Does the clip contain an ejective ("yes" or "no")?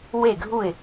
no